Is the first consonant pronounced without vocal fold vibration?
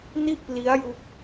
no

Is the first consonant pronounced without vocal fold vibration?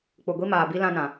yes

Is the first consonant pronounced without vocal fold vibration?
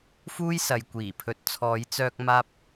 yes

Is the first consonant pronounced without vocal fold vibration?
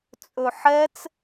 yes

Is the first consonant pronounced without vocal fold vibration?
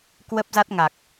yes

